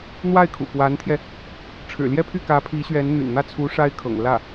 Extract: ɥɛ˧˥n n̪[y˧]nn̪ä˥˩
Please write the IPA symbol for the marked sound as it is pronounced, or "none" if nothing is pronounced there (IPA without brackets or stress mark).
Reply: y̰˨˩